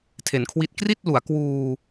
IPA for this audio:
tʰe˩˦nkʰwi˦˥t̚ kri˥˩t̚ lu˩˦a̯kwuː˧

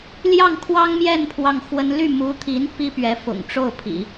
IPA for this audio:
ljɑ˥˩ŋkʰwɑ˥ŋ mjɛ˥˧n pʰwɑ˥˩ŋxwə˥n ly˥˩mu˧˥t̪ʰi˧˥n pi˥pɥɛ˧˥ fʊ̰˨˩ŋʈ͡ʂo˥˩ʊ̯pʰḭ˨˩˦

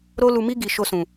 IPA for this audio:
ɾo˦lu˧mi˦ ɡi˦˨ ʃo˧sũ˨

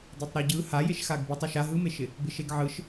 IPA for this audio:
detˤɾɯɟɯ hajeʃ xaɡbɯtˤ eʃa ɦɯmeʃɪ | bɪʃeɡʕɯʃ

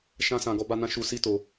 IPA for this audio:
ʃã˦sã˧ ɡɔ˧ba˧nã˧ ʃu˧si˦ to˧

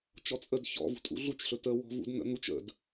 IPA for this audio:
t͡ʃɔt͡sʼəd çɔ̰ vṳtʼṵɮut͡ʃ ɬɵtə wɔ̤vṵdn̪ə̰n̪ut͡ʃ ə̰d

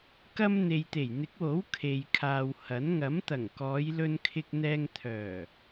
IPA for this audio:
kɐ˧m n̪e˨jt̪e˨˩jn̪ɪ˨˥k̚wo˨˥w kʰe˨jkʰaː˨whɐ˨˥n ŋɐ˨˥mt̪ɐ˨˩ŋ kɔː˨˧jlɵ˧nkʰɪ˧k̚ n̪ɛː˧ŋ t̪ʰœː˨˩

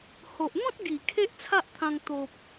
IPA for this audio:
ho˨ʔn̪ɔ̃˦t̚ɡi˨˩ kʰe˦ʔt͡sʰa˦ʔt̪ʰã˧ŋ t̪o˨p̚

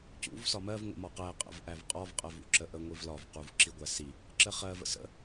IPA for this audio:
cṵv sɒmɜv ŋʷə̰mɒqæ qʼə̰vʔævqʼɒv qʼɜvṵǁəʔə ŋʷivlɒv quvǁiɡʷæsi | ǁəχɜv ə̰sə̰

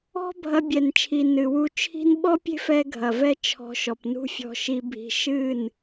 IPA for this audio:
ɔ̤˦ bʱɐ˧bʲɛ˨nt͡ʃʰi˨ nɨ˨wu˧t͡ʃʰi̤˦n ɓɔ˦pʲe̤˦fɛ˧ ɡʱɐ˨vɛ˦t͡ʃʰɔ̤˧ʃɔ˨p nṳ˦fʲɔ̤˧ʃi˧bʱi̤˧ ʃɨ˦˨n

